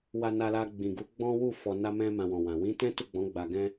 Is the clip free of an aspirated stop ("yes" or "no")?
yes